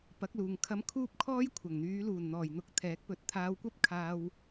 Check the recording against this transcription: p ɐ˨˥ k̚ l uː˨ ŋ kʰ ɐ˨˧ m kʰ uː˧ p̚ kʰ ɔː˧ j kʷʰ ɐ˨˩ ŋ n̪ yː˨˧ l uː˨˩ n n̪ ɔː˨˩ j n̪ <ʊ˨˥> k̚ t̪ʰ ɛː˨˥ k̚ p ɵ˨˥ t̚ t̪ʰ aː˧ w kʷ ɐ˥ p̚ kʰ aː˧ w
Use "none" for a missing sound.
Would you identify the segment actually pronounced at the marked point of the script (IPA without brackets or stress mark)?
ʊ˨˥